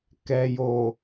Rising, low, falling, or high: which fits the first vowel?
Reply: low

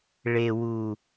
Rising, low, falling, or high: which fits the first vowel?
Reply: low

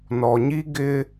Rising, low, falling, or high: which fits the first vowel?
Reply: low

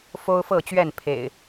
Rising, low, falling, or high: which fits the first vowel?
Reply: high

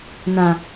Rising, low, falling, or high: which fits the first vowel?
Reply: low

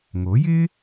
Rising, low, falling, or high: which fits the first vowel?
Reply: rising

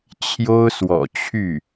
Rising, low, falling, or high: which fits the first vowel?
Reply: high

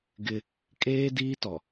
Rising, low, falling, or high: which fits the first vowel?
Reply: high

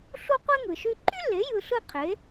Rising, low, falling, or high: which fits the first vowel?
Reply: high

